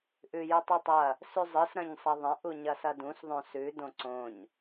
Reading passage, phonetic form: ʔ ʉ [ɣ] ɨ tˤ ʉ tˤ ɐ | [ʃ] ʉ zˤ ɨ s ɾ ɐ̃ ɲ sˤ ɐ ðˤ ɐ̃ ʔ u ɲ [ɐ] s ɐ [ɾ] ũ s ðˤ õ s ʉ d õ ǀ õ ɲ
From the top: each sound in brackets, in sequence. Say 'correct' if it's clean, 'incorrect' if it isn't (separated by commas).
incorrect, incorrect, correct, incorrect